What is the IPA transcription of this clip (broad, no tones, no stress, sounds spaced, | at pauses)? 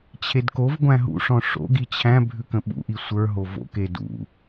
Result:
t͡ɕʰ e d k o v ɡʷ æ̃ ɦ ṵ ʂ ɔ̃ ʂ o̰ ɡ i t͡ɕʰ æ̃ bʱ ʉ k ə̃ ɓ ṵ ʔ i sʷ ə˞ ɦ o v o̰ k e d ṵ